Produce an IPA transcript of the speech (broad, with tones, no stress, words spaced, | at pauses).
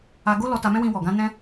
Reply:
a˧ɡo˦lɔ˧ ta˧mɛ̃˦ wĩ˧wɔ˨ ɡã˧nɛ̃˧